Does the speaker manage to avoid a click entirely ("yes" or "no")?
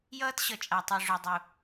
yes